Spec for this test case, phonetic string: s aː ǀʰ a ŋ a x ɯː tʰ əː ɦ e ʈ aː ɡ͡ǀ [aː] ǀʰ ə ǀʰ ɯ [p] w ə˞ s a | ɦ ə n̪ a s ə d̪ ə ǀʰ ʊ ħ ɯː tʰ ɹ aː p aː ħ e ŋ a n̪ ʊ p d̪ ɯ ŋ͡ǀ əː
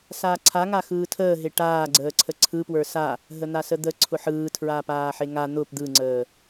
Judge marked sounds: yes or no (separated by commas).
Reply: no, yes